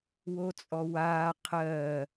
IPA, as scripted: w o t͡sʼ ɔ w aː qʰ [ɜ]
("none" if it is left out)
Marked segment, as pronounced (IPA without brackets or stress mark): ɜ